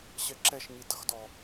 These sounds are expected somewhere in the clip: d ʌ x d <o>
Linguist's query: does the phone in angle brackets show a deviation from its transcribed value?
yes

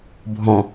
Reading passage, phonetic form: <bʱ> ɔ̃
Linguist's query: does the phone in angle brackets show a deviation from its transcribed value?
no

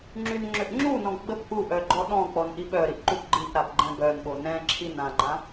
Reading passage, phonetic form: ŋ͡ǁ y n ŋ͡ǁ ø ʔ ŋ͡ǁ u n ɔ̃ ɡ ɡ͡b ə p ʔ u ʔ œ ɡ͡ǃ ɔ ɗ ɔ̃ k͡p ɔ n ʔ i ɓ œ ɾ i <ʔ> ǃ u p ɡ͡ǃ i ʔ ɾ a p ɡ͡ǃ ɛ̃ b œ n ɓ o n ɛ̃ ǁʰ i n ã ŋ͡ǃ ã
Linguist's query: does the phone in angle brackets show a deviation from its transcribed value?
no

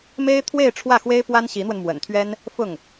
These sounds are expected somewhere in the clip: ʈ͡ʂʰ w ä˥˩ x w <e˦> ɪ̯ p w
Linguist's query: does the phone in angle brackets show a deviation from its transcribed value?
yes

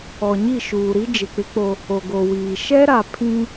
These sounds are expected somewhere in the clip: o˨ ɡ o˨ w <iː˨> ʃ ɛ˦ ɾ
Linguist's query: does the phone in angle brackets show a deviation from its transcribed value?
no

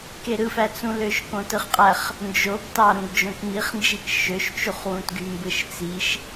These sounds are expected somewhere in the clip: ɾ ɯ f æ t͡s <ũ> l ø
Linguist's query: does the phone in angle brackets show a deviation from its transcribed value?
no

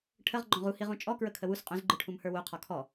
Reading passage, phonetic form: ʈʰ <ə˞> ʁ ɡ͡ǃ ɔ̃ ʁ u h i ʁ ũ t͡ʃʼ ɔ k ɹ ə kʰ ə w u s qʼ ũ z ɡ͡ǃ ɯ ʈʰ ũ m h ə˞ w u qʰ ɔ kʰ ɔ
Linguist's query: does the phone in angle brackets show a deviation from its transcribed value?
yes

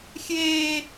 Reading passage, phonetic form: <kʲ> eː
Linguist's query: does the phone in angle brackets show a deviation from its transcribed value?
yes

